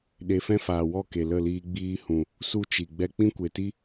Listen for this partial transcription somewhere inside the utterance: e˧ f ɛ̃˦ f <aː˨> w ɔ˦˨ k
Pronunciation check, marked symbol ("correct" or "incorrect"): correct